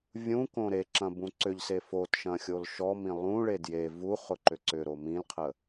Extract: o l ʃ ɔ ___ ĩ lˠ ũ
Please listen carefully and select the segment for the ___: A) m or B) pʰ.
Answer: A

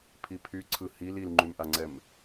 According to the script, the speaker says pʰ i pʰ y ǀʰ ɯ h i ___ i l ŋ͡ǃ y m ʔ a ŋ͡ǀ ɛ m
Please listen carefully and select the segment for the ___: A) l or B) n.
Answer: A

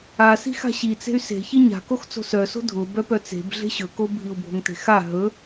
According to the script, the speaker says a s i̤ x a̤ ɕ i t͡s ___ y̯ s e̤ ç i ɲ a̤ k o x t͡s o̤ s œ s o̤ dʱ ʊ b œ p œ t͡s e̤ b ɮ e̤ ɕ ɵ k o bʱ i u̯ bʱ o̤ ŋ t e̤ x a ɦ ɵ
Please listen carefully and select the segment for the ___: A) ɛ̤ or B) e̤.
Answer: B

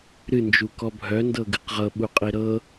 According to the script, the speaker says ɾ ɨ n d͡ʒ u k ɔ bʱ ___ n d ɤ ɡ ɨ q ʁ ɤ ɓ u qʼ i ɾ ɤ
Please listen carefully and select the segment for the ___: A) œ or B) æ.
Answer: A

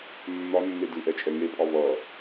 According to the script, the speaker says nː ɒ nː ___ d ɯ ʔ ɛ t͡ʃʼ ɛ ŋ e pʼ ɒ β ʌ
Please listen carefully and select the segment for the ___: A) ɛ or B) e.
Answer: B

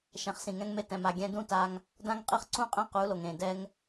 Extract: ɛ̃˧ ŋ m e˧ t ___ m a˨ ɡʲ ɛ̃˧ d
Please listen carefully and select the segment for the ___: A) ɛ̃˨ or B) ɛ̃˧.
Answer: A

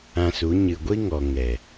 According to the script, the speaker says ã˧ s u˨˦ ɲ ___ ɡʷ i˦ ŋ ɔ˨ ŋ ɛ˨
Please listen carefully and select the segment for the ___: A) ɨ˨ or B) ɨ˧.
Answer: A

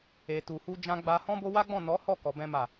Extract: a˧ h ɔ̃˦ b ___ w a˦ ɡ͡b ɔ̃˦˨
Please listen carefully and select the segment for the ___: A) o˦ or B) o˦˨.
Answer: A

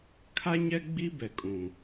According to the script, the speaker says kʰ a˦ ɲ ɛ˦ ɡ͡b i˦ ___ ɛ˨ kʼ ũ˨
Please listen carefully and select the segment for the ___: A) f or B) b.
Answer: B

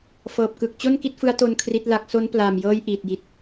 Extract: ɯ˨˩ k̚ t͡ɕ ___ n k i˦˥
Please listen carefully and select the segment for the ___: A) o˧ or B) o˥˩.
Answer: B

